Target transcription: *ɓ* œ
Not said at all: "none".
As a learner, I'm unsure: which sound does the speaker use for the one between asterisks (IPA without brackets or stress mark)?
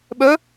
ɓ